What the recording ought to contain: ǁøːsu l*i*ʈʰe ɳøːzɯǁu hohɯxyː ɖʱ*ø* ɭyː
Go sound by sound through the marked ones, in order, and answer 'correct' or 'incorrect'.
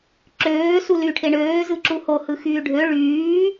incorrect: y, correct

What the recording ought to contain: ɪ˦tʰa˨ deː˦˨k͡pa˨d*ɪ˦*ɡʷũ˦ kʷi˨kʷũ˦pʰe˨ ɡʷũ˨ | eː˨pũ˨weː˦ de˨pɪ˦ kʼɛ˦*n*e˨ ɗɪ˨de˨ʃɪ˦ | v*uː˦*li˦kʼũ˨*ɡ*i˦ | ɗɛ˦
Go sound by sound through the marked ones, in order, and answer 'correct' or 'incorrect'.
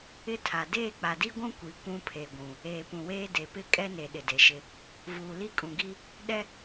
incorrect: i˦, correct, incorrect: uː˨, correct

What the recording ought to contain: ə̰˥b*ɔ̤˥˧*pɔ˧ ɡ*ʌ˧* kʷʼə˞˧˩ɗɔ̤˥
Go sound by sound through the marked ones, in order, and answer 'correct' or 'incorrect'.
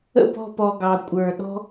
correct, incorrect: ɑ˧

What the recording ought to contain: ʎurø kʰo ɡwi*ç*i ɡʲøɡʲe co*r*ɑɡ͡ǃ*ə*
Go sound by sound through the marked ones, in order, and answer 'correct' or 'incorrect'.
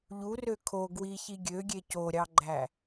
correct, incorrect: ɾʲ, incorrect: æ

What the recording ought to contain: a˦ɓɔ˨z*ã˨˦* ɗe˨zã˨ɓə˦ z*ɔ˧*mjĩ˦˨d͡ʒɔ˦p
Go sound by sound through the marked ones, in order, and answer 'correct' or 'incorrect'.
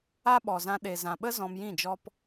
incorrect: ã˧, incorrect: ɔ̃˧

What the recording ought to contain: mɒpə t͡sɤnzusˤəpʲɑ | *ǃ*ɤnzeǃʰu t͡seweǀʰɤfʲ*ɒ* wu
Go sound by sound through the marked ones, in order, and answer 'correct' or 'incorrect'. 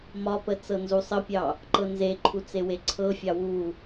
correct, incorrect: ɑ

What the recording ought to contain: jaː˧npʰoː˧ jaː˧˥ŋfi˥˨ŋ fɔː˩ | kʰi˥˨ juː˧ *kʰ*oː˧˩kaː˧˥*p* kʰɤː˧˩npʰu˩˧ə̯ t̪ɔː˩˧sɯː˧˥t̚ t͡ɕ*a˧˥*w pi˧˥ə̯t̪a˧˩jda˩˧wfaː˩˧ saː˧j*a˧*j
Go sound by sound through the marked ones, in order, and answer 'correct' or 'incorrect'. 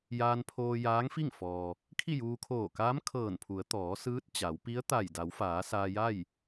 correct, incorrect: m, incorrect: a˩˧, incorrect: a˥˨

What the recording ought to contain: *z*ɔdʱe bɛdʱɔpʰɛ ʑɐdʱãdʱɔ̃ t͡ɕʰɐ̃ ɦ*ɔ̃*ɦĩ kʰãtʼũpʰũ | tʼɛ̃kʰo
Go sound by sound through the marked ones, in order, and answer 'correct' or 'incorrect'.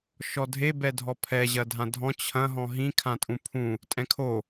incorrect: ʃ, correct

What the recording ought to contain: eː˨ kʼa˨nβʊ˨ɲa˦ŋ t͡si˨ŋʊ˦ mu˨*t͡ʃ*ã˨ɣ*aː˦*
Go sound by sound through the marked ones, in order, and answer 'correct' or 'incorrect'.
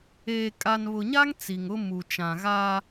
correct, correct

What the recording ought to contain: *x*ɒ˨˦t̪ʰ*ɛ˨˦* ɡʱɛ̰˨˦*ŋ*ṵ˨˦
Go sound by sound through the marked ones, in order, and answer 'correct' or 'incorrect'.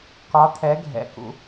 incorrect: k, correct, incorrect: k

